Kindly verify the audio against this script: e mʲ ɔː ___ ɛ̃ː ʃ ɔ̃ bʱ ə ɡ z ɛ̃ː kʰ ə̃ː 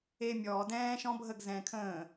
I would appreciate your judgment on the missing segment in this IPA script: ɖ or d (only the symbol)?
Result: d